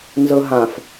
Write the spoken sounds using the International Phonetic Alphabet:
nzɤɦãf

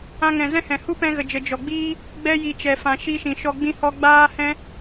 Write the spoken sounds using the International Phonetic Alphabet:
ã˧ŋɛ̃˨zɛ̃˦hɛ̃˨ hu˦pɛ̃˧ɣə˨d͡ʒə˨ d͡ʒɔ˨ɡ͡biː˦ | ɡ͡bɛ˦ ji˨t͡ʃɛ˨fã˨ ʃi˧ʃĩ˨ʃɔ˧ ɡ͡bĩ˦hɔ˦ ɡ͡baː˦hɛ̃˦

